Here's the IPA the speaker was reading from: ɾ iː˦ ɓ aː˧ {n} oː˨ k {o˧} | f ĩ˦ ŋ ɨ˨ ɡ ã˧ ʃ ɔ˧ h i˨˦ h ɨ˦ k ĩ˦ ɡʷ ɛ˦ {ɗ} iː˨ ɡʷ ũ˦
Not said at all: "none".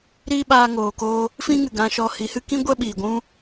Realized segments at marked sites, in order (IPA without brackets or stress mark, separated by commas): ŋ, oː˧, ɓ